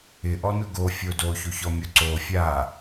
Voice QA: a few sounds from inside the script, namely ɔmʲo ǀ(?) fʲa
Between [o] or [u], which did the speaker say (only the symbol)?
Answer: o